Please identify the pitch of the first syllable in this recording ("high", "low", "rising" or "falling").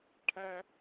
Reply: high